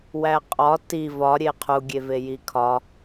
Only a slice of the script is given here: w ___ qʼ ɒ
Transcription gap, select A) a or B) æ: B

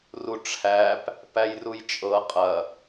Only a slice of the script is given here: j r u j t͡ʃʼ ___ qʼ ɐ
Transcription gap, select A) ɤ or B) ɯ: A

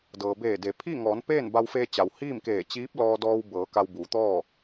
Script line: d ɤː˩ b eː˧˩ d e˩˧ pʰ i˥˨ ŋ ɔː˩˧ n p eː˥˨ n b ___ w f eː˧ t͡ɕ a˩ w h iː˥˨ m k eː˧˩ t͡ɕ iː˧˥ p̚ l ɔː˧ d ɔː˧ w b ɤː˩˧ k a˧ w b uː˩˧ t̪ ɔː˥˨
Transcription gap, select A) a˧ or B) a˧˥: A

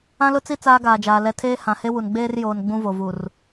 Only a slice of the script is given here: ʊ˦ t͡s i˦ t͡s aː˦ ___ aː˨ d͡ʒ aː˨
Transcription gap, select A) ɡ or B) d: A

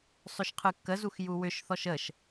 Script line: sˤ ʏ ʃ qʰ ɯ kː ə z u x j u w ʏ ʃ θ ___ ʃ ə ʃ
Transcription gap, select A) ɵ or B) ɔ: B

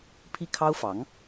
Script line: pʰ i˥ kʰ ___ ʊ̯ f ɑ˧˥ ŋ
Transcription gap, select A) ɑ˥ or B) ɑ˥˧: A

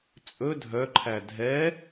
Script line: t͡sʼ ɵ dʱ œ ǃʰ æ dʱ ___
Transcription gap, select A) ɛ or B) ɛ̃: A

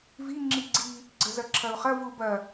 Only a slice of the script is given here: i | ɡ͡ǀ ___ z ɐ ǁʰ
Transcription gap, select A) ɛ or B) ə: B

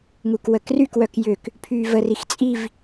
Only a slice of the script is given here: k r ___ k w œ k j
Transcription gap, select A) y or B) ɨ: A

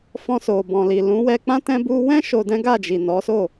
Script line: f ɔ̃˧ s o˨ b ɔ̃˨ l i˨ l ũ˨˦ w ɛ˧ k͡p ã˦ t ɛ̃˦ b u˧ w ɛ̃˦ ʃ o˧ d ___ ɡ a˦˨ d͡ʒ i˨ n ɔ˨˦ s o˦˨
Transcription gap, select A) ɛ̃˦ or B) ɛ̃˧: A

